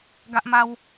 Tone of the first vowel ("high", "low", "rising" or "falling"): high